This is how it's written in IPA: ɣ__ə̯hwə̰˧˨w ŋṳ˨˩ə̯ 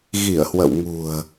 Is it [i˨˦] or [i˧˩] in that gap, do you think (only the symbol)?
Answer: i˧˩